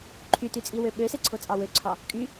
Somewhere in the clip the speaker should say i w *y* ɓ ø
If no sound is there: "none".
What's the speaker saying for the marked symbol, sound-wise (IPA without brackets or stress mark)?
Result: ø